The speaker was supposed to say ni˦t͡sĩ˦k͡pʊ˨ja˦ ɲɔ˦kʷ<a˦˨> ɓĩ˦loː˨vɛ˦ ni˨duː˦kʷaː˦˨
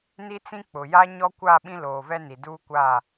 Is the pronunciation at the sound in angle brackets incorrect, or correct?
correct